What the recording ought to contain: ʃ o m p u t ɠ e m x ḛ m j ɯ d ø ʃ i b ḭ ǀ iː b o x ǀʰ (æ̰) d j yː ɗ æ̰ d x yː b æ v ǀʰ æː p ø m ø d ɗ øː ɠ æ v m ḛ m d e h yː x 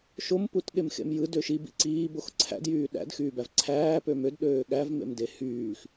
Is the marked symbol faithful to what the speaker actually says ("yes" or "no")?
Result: yes